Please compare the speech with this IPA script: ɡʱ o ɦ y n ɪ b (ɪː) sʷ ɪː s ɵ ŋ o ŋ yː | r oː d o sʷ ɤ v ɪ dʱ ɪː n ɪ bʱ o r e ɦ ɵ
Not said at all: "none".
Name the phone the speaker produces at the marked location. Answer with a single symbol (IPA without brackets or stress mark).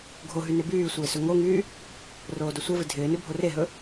yː